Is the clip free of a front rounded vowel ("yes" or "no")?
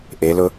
yes